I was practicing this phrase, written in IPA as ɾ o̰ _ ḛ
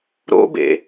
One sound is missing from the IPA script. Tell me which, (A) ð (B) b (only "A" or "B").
B